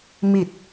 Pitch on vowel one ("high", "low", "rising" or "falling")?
low